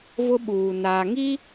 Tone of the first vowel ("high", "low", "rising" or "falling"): high